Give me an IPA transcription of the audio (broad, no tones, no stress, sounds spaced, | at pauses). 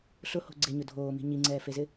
ɬ ʊ h o̤ ɡ͡ǀ e ɲ ʊ dʱ oː m i̤ ɲ i ŋ͡ǀ ɛː f e z ɪ